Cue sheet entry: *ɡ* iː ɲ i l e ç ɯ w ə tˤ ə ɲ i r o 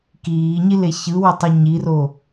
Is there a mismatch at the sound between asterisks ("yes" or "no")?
yes